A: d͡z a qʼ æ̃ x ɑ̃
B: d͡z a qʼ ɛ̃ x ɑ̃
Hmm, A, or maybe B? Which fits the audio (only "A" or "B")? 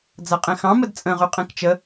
B